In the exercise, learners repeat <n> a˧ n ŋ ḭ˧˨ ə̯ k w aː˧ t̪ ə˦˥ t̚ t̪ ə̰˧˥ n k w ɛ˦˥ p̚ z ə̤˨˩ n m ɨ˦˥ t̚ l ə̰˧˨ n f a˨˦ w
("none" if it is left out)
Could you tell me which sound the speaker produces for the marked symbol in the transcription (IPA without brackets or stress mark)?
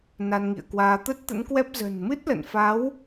n